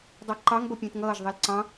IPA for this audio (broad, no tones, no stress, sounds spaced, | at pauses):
dˤ ɜ ǃ ɑ ŋ b ʌ pʲ ə̃ː t ŋ ʌː ʒ ðˤ i l ǀ ɑ̃